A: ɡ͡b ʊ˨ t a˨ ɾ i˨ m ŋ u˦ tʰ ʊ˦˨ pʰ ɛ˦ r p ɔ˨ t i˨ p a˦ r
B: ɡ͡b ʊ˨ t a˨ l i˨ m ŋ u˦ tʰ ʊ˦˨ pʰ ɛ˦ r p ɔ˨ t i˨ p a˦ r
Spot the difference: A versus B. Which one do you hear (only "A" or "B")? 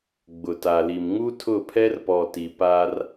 B